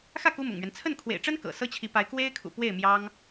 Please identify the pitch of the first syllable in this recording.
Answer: falling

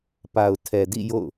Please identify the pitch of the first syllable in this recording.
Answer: low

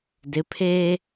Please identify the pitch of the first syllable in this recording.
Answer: rising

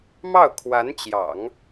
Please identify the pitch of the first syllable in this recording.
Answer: falling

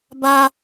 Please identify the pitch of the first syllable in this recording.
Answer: high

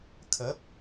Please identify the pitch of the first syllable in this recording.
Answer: rising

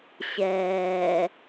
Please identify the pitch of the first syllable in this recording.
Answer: low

